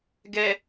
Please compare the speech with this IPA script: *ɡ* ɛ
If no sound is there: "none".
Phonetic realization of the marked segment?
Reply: ɡ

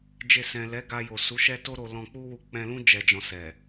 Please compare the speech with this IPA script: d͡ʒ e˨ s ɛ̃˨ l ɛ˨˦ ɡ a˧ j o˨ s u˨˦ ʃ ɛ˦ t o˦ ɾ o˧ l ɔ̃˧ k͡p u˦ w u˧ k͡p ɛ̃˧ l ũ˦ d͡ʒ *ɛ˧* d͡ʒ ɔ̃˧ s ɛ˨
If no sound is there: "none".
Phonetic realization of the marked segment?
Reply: ɛ˧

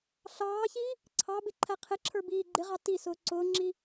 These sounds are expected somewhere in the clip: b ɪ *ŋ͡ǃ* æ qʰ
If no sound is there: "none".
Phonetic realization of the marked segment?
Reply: ǃʰ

